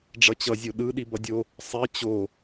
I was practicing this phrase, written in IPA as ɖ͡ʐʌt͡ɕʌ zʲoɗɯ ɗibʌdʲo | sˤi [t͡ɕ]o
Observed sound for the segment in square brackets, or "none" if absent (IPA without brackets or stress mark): t͡ɕ